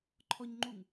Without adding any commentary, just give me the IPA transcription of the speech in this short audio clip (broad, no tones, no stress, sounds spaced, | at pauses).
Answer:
ǃʰ ɔ ɲ ŋ͡ǃ u ŋ